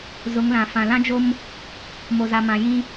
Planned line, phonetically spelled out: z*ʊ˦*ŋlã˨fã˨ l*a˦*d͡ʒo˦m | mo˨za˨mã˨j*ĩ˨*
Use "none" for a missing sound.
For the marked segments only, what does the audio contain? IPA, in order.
ʊ˨˦, ã˦, ĩ˦

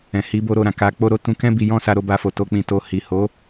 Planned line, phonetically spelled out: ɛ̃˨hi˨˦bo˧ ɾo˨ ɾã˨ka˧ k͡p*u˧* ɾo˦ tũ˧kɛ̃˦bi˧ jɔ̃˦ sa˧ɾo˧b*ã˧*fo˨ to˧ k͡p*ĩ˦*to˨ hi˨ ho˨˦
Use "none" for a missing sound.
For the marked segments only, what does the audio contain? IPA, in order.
o˧, a˧, ĩ˨

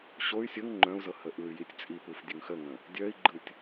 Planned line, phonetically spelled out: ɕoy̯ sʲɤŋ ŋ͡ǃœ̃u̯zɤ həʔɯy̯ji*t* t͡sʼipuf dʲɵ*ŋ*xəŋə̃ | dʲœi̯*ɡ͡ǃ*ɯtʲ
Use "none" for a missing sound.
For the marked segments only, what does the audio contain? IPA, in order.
tʲ, ŋ, ɡ͡ǃ

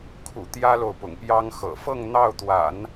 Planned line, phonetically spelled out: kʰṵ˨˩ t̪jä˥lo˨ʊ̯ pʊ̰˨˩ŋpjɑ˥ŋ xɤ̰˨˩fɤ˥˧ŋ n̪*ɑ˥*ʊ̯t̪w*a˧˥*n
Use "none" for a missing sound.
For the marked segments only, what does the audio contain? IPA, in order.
ɑ˥˩, a̰˨˩˦

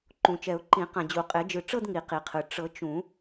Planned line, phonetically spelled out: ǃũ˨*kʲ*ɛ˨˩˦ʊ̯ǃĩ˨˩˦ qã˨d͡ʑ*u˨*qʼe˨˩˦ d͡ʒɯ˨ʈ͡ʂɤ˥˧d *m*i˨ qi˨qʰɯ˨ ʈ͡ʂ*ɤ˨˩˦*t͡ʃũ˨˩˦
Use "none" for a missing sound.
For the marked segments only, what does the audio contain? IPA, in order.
t͡ʃ, u˨˩˦, ŋ, ɤ˨˩˦

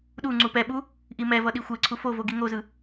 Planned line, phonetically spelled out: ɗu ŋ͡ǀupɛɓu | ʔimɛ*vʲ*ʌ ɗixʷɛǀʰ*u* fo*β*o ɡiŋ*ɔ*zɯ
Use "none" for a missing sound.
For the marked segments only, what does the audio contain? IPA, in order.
v, u, v, o

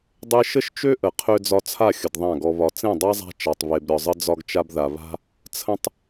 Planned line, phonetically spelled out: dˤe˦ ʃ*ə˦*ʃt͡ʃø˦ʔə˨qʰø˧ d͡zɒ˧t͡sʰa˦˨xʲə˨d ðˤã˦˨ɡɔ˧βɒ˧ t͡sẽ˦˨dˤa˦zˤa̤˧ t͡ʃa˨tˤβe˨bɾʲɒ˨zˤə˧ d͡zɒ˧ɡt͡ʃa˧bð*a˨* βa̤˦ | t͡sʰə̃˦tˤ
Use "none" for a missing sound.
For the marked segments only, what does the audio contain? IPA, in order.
ə˦, a˨

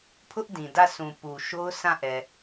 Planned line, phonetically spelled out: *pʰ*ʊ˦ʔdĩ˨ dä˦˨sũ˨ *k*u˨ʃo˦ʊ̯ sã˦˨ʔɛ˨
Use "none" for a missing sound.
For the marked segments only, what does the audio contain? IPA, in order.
pʰ, p

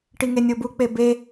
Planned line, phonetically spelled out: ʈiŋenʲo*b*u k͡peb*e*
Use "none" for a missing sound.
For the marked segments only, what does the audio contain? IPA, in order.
b, e

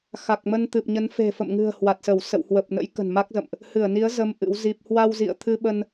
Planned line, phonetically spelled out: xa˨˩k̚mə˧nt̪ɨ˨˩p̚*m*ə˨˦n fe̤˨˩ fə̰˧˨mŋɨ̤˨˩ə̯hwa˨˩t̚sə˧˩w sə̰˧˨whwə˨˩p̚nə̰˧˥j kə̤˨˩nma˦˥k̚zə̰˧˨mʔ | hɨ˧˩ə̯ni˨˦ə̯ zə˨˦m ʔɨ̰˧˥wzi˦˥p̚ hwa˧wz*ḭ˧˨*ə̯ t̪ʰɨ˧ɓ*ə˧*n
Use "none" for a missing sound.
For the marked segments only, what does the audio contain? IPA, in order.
ɲ, ḭ˧˨, ə˧

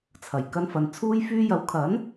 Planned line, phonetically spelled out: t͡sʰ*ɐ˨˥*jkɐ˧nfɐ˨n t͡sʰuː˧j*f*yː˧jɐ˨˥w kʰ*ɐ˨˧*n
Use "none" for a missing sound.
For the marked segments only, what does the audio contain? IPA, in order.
ɐ˨˩, f, ɐ˨˥

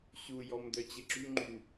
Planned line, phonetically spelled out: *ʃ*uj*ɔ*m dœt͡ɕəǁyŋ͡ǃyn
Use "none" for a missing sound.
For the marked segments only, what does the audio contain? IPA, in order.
ɕ, ɔ

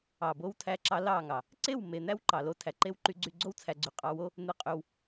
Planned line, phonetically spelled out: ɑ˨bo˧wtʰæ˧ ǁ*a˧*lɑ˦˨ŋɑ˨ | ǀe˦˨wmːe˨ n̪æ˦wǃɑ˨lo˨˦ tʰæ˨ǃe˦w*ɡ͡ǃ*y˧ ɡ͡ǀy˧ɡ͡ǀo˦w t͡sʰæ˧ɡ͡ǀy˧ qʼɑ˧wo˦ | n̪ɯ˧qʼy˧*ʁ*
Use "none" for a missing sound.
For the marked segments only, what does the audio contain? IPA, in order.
ɑ˧, ǃ, w

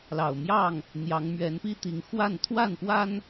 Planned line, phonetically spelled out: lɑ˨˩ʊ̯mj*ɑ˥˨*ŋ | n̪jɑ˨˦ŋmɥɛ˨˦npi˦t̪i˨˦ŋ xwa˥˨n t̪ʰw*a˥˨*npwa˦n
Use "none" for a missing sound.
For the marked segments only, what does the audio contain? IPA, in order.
ɑ˥˨, a˥˨

